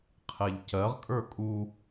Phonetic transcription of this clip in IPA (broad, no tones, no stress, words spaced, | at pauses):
qʰeʎcɜʁkʼə˞ kʼu